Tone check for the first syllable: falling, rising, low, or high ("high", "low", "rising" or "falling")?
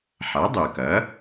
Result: rising